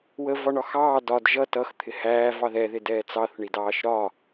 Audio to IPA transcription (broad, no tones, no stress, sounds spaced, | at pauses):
w ə v ɒ ɳ ɒ x ɑː d ɒ d ʒ ʌ t ʌ x t̪ʰ ɪ h æː v ɑ ð ɛ ð ɪ d ɛː t͡s ɑ θ ɳ i d ɑː ʃ ɾ ɒ